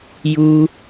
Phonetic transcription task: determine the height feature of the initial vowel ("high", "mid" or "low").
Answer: high